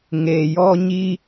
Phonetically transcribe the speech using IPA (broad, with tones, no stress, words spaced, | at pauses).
ŋe˨jɔ˦ɲi˦